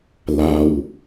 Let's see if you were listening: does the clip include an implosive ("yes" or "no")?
no